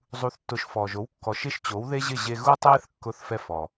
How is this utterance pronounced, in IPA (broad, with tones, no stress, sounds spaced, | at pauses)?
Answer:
zˤ u˩˥ θ tː ʊ˩˥ ʃ f ɔː˩ ʒ o˩˥ w kː ɔ˩ ʃ ɪ˥˩ ʃ t͡ɕ o˩˥ w ð e˥ ʑ ɪ˥˩ ʑ e˧ ɣ u˥ tˤ eː˥ θ kː ʊː˧ θ f ɛ˧ f ɔ˩